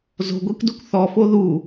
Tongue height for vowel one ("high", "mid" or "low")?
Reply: mid